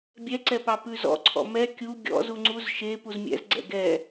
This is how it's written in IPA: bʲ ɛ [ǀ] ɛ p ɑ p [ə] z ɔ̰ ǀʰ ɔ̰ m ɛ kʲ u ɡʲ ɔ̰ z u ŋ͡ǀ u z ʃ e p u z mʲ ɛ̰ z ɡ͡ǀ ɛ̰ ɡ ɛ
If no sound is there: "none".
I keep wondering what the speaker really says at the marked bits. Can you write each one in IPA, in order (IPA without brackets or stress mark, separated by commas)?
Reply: ǀ, ʉ